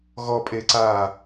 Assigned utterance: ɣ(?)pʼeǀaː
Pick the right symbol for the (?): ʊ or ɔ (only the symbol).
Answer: ɔ